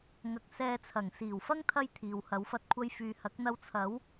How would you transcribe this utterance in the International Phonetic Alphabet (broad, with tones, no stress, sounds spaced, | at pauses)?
ŋ ɐ˨˥ k̚ s ɛː˧ t͡sʰ ɐ˨˩ ŋ s iː˨˩ w f ɐ˥ ŋ t̪ʰ ɐ˥ j t̪ʰ iː˨ w h ɐ˨˧ w f ɐ˧ t̚ kʷʰ ɐ˧ j f yː˨ h ɐ˨˥ k̚ n̪ ɐ˧ w t͡sʰ ɐ˨˥ w